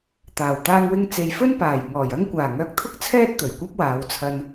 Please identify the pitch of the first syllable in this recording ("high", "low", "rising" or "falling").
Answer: low